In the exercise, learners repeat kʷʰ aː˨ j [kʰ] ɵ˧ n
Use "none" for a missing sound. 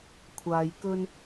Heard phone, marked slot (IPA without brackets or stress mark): k